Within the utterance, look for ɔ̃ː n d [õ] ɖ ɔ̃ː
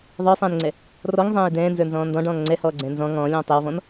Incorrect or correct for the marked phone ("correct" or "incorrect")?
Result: incorrect